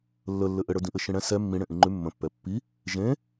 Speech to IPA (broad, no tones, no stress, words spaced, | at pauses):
lːəlːɘ ʔɘɽə˞dĩʔɘ ʃĩɽɛ̃ sɛ mːĩ ɽẽʔĩŋ͡ǃʉ mːə̃pːɛ pːi | ʒẽ